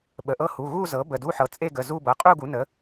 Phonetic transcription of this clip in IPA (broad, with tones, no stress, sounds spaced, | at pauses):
ɓ ə˩˧˩ ʔ ɤ˥˧ h u˩˧˩ ɣ u˥˧ z ɤ˩˥ b ə˩˧˩ d u˧˥˧ ħ ɤ˩˥ t͡sʼ e˥˧ ɡ ə˩˧˩ z u˥˧ b ɤ˩˧˩ qʼ u˥˧ ɡ u˩˥ n ə˩˥